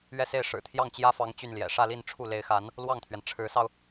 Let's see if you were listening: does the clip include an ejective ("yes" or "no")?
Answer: no